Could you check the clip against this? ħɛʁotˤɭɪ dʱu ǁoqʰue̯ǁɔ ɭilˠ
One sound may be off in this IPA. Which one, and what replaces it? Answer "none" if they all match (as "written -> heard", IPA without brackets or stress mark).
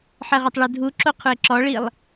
none